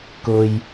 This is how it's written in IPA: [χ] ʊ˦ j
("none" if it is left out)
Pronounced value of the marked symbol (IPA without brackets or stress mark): k